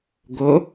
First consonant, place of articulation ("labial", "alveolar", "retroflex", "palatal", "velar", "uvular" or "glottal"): velar